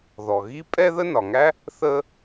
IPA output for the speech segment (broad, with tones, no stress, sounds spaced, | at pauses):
ð ɔ˩ ɣ i˥ pʼ ɛ˥ ð ə˥ n ɒ˩ ŋ æ˥ | θ ə˥